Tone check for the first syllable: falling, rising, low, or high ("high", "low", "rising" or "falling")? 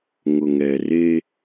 low